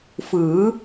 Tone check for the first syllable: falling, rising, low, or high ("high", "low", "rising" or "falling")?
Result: rising